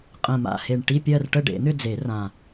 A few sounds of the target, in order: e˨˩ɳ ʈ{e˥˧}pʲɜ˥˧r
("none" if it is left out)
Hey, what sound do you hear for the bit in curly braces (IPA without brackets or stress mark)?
i˥˧